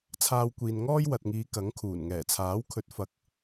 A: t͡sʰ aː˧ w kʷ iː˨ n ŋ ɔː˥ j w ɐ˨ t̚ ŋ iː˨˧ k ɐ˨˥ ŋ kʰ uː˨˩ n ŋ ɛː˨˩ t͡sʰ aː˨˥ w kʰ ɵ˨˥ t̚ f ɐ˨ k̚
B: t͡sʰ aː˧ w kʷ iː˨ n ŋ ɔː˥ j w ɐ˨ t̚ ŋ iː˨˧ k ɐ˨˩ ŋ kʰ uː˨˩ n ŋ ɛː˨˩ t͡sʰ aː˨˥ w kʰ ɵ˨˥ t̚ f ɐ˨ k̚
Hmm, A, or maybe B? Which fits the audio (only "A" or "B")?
A